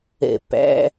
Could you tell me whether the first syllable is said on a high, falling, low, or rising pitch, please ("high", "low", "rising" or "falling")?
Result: low